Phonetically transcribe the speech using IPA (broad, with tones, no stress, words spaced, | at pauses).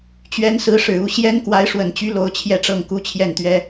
t͡ɕɥɛ˧˥nsɹ̩˧˥ʂɻ̩˨˩u˥˩ ɕjɛ˥n kwa˧˥ɪ̯ʂwə˨˩nt͡ɕy˧˥ lo˧˥ʊ̯t͡ɕʰjɛ˥˧ʈ͡ʂɤ˥˩ŋ ku˥t͡ɕʰjɛ˥˩nt̪ɥɛ˥